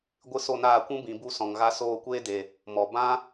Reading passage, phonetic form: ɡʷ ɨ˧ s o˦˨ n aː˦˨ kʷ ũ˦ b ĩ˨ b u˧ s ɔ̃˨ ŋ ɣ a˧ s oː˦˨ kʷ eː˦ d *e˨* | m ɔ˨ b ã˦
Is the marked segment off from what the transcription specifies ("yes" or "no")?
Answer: no